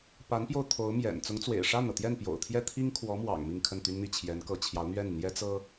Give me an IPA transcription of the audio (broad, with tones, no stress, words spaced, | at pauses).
pa˧˥npjo˧ʊ̯t̪ʰo˧˥ʊ̯mjɛ̰˨˩n t͡sʊ˧˥ŋt͡swḛ˨˩ɪ̯ ʂa˥˩nɤ˩t̪jɛ˥˩n pjo̰˨˩ʊ̯t̪ʰjɛ˥˩ t̪ʰi˥ŋkʰwɔ˧˥mwɑ̰˨˩ŋ mi˥˧ŋkʰə˥˩nt̪y˥nn̪i˥˩ t͡ɕʰjɛ˧˥nkɤ˧˥ t͡ɕʰjɑ˧˥ʊ̯n̪ɥɛ˥˩n n̪jɛ˥t͡sɤ˥